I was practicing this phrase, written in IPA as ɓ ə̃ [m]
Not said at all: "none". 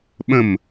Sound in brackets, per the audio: m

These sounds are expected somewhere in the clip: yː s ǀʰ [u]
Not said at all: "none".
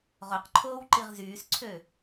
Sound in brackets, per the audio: ø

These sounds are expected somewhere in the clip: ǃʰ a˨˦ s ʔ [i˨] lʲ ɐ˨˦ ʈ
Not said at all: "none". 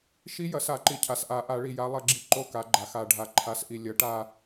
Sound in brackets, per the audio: i˨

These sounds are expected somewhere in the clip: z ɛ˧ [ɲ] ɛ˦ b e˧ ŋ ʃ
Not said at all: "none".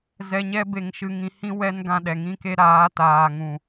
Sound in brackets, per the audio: ɲ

